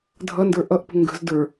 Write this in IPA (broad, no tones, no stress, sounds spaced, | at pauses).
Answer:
dʱ ʌ n d ə˞ ʔ ʌ ʔ p ə̤ ŋ ɡ ə̤ z d ə˞